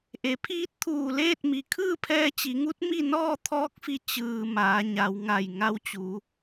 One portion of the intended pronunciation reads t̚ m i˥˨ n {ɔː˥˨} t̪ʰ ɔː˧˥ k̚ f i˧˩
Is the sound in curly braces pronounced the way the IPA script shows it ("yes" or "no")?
yes